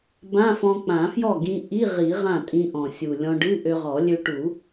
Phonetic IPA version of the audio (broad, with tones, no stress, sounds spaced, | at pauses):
b ã˧˥˧ f ɔ̃˧ k͡p ã˨˩˦ f j ɔ˥˩ ɡ ĩ˧ ʔ i˧˥˧ ʁ i˨˩˦ ʁ ã˥˩ tʼ ĩ˧ ʔ ɔ̃˨˩ sʲ u˨˩ lʲ ɔ̃˧ ɖ ɨ˧˥˧ ʔ ø˧ ʁ ɔ˨˩˦ lʲ ø˧ ʈ u˨˩˦